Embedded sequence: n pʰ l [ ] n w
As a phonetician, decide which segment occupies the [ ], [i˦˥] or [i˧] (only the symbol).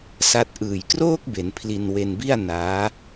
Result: i˧